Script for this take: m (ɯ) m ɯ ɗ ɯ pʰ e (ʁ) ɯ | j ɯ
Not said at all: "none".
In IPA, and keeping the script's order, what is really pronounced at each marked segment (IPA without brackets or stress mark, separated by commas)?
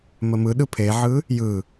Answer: ə, ʕ